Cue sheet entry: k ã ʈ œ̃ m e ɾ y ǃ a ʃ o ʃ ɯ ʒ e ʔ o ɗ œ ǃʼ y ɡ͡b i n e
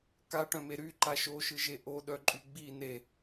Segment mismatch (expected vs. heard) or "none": ã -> a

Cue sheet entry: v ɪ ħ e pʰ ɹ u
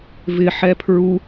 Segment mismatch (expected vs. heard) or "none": e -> ɛ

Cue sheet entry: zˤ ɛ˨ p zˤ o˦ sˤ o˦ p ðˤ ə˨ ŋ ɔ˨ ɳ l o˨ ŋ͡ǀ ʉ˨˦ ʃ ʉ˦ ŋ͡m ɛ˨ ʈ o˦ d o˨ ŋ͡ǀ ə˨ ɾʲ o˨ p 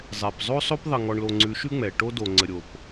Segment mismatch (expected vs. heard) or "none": none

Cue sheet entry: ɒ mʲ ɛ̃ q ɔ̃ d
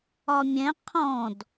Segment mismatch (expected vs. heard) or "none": q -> qʰ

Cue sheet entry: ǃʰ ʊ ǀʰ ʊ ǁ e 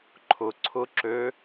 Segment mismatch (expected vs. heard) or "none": e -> ø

